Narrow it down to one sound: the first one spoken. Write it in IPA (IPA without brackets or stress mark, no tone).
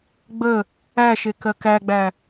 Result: ɡ͡b